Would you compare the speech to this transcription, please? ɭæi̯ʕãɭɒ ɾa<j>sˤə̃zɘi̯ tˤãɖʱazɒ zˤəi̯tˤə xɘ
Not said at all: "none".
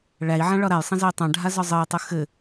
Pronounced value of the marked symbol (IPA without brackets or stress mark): j